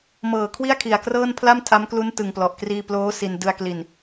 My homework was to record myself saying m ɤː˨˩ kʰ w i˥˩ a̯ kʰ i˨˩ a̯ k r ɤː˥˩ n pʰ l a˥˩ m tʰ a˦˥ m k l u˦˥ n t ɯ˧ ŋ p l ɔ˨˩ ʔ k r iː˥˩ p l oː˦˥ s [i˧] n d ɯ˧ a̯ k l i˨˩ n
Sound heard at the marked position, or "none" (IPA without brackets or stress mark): i˧